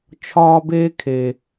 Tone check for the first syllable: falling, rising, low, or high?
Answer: high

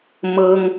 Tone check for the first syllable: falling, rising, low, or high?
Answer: high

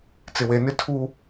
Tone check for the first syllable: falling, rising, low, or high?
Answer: low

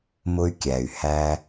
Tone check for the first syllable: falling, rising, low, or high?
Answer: high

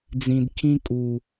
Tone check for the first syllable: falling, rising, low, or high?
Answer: low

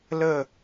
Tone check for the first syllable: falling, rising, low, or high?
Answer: falling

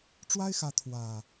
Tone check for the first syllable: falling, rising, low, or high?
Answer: high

